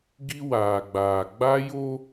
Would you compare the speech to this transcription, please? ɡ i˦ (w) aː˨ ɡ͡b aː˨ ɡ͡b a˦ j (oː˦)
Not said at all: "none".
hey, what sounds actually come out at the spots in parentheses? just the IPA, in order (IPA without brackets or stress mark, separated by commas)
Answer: w, o˦